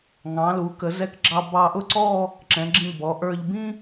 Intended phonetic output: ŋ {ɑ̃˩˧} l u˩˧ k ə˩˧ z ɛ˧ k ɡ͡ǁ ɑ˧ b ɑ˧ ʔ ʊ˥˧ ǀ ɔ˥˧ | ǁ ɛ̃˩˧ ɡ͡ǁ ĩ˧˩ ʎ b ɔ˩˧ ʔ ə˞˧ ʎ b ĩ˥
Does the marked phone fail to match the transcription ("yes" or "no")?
no